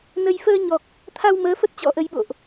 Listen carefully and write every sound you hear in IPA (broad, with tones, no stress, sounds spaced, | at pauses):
n ə˧ j f əː˧ ɲ ɔ˨˩ k̚ | t̪ʰ a˧ w m əː˨˦ f ə˦˥ t̚ t͡ɕ ɔ̰˧˥ ʔ ə˨˦ j ɓ o̰˧˨ ʔ